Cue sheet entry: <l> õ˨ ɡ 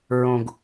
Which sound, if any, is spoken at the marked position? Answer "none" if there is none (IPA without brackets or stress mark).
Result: ɹ